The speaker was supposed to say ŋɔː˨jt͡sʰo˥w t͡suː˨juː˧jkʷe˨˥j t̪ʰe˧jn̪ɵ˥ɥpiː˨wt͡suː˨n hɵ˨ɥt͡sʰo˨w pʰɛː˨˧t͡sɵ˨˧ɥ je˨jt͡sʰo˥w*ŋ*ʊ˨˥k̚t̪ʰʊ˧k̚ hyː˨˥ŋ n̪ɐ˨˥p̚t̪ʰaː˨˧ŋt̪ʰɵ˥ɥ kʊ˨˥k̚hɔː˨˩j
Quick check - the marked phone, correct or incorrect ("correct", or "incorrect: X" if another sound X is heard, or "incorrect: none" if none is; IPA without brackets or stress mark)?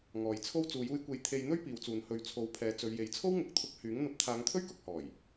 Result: correct